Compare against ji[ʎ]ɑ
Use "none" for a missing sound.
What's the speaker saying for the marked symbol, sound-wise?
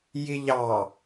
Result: ʎ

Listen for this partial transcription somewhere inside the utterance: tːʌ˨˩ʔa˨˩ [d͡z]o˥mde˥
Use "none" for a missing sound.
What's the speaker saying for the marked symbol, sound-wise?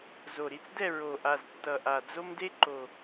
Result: d͡z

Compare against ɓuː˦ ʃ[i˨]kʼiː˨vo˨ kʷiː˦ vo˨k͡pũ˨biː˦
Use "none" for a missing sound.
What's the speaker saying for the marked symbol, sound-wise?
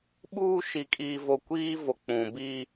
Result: i˨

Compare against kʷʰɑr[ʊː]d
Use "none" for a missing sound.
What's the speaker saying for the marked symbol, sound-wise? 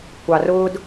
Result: ʊː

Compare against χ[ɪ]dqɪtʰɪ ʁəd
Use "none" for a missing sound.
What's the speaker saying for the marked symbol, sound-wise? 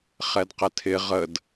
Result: ɛ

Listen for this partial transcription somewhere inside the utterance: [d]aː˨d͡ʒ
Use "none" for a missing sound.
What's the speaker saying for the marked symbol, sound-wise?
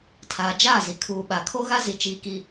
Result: tʰ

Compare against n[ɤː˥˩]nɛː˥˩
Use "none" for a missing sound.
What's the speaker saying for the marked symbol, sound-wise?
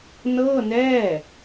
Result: ɤː˥˩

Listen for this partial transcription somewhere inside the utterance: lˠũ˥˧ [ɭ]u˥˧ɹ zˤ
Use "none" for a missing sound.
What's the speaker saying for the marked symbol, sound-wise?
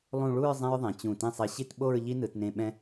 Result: ɭ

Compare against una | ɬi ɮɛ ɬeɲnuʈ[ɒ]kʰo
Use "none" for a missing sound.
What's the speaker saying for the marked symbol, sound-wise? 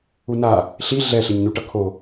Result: ʌ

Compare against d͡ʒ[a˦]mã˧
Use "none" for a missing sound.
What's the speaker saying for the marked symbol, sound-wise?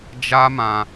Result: a˦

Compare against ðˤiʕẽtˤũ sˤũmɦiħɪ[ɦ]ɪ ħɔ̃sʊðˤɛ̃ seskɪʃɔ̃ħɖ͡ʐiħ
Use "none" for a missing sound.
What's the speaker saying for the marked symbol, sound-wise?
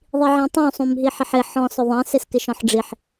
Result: ħ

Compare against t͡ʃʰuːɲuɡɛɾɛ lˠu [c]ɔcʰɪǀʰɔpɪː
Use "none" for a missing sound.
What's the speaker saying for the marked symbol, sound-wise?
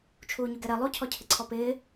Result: cʰ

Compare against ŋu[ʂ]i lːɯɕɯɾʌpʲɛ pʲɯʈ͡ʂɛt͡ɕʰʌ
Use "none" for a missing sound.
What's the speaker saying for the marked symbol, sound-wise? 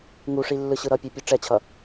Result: ʂ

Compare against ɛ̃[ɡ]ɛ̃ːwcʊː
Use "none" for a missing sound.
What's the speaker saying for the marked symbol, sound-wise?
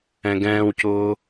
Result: ɡ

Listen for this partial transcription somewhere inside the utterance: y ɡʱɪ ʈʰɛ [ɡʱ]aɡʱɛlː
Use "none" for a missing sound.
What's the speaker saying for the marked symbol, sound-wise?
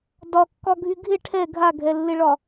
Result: ɡʱ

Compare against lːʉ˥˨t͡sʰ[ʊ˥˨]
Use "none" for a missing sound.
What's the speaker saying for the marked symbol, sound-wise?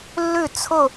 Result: ʊ˥˨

